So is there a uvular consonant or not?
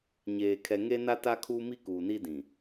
no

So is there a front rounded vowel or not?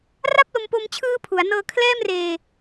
no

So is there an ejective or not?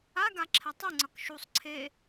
no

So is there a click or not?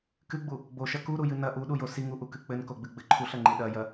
yes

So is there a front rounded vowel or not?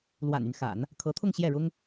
yes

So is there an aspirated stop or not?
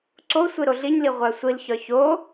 no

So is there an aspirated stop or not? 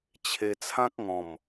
yes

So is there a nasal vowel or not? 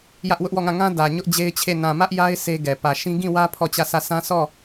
yes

